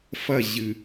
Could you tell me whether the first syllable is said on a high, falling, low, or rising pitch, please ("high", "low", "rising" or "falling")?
falling